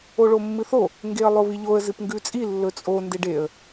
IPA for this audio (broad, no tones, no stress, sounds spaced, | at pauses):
o ɭ o mː ɨ θ o | ŋ ɡ e ə̯ lˠ o β i ʎ o ə̯ z ɨ p ŋ ɡ ʉ t͡sʼ i lː ɵ t͡sʼ o n d e ɖ e ə̯